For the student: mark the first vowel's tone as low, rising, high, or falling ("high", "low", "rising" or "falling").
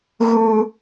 high